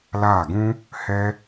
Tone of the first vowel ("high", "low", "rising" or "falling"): falling